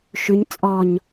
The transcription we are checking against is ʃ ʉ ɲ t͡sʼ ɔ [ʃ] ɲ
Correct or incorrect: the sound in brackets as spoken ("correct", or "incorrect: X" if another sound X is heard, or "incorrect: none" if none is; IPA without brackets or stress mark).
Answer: incorrect: none